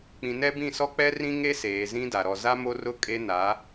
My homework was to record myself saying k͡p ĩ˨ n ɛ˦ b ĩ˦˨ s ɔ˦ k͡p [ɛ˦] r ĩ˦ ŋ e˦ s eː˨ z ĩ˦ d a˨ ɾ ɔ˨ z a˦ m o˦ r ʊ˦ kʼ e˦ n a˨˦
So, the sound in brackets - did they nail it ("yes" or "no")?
yes